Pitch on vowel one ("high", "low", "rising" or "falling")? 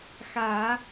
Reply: low